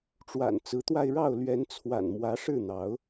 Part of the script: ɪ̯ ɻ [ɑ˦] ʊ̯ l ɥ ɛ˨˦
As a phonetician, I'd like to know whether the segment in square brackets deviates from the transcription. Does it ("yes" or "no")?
yes